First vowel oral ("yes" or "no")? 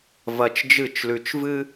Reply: yes